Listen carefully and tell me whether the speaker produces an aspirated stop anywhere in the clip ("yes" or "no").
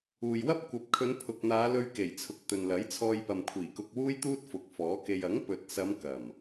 yes